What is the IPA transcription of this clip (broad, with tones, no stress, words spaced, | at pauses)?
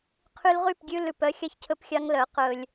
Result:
qʰy˧lʁy˦˨pɡʲʉ˧ lʉ˨pœ˧xʲɑ˧ç cʰɵ˧pxʲɑ˧ŋlœ˨˦ qɵ˧lʲ